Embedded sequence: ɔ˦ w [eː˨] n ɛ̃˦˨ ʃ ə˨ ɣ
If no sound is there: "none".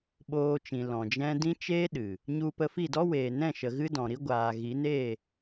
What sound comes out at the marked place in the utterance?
eː˨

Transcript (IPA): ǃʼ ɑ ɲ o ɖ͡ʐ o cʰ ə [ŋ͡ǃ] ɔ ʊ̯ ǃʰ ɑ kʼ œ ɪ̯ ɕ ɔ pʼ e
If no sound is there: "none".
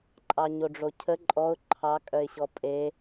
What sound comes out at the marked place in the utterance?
ǃʼ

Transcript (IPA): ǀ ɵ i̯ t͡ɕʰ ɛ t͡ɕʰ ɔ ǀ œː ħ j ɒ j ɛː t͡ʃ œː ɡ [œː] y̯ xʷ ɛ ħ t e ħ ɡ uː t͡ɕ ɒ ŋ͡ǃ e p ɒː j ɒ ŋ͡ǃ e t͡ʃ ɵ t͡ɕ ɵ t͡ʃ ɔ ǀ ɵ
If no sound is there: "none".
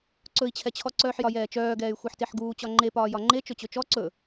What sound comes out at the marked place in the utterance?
ɛː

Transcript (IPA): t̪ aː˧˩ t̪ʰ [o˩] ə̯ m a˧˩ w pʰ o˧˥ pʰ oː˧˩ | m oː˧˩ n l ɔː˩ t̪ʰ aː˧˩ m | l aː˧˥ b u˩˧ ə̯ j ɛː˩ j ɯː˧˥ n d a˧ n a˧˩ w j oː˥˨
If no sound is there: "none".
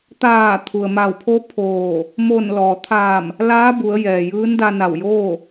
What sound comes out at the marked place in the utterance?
u˩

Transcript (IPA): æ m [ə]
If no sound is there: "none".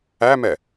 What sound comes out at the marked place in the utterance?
ɛ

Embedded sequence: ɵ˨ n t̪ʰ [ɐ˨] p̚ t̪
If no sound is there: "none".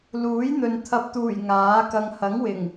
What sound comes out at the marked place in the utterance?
ɐ˨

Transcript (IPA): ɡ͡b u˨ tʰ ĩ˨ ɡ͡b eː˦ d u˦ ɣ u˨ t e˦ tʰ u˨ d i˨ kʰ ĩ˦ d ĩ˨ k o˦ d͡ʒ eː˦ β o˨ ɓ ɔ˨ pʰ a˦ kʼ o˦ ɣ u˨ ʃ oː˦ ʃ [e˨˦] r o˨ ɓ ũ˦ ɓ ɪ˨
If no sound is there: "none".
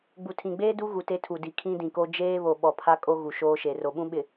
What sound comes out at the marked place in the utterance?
e˨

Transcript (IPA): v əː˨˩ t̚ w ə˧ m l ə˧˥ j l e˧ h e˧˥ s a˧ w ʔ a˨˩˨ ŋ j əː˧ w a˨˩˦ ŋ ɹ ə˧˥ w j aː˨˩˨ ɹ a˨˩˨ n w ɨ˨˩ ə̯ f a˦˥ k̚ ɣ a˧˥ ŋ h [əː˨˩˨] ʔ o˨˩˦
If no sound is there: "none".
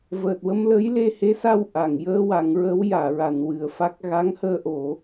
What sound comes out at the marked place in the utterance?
əː˧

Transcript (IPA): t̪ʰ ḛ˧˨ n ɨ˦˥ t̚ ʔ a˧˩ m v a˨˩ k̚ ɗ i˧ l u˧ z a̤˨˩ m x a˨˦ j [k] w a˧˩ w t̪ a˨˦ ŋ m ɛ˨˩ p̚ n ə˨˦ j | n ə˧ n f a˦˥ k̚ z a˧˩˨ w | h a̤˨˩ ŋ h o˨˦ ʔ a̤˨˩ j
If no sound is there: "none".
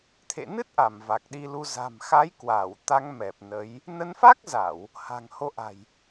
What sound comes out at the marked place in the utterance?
k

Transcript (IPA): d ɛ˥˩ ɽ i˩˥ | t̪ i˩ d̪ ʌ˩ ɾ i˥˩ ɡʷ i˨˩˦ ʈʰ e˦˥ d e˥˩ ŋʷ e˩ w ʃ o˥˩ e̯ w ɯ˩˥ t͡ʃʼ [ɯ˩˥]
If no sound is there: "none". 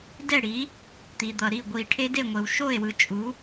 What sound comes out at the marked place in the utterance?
u˩˥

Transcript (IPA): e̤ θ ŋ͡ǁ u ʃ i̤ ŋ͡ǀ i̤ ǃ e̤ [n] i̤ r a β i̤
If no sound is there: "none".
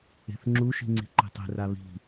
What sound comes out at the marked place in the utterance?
tˤ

